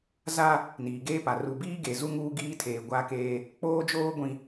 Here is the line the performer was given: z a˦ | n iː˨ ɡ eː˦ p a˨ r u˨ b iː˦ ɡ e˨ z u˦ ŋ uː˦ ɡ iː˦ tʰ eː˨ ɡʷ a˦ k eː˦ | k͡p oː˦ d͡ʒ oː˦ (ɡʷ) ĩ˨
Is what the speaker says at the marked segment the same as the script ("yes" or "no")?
yes